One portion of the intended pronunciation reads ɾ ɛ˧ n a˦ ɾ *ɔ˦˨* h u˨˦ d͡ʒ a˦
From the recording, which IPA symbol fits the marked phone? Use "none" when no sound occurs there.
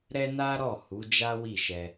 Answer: ɔ˦˨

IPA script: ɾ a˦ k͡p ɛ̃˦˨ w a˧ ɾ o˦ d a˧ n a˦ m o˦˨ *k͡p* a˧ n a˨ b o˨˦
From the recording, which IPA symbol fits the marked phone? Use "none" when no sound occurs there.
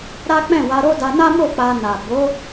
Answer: k͡p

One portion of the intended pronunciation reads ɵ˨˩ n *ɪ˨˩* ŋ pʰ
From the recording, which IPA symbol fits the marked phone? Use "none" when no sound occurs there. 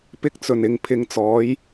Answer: ɪ˨˩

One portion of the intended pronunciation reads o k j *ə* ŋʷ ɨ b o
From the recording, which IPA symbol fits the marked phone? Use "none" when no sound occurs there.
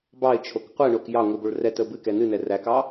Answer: ɑ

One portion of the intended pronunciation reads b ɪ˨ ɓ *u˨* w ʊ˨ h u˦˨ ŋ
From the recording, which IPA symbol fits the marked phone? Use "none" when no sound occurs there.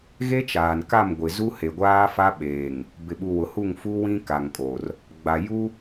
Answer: u˨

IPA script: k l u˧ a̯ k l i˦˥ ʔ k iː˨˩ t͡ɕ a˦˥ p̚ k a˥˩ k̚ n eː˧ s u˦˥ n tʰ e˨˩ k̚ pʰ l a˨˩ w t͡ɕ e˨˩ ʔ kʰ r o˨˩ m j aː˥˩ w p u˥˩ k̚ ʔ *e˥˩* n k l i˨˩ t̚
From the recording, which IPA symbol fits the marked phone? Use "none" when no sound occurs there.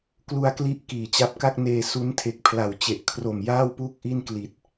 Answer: i˥˩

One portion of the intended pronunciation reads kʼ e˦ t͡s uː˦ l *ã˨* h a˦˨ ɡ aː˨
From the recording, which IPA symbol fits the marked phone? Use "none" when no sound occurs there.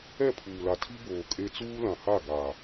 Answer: ã˨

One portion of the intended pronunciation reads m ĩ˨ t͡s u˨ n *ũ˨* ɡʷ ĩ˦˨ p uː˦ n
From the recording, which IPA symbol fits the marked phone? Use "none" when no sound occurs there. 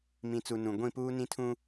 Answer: ũ˨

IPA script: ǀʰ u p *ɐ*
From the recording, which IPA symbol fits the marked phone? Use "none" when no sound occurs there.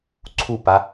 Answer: a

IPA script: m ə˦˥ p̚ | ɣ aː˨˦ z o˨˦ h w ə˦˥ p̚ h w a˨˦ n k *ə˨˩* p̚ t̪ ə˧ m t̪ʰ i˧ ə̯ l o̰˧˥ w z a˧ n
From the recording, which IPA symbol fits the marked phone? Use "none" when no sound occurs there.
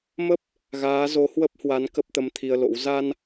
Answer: ə˦˥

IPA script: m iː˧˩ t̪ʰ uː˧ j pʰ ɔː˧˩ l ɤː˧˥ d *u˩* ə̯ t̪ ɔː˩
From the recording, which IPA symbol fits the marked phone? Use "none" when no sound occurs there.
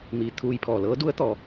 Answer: u˧˥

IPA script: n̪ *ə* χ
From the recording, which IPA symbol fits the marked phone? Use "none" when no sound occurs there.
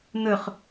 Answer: ɵ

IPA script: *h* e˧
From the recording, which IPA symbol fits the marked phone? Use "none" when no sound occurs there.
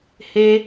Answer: h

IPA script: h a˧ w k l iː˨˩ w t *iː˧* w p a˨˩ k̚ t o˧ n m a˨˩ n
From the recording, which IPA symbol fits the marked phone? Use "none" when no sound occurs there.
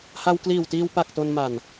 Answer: iː˧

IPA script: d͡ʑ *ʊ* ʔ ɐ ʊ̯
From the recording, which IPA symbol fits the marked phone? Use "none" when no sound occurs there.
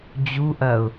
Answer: u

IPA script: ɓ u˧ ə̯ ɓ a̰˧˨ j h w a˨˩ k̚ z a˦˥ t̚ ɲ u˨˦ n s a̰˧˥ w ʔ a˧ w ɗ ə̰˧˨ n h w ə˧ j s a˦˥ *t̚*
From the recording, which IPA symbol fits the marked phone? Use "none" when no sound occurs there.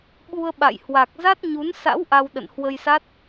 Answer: t̚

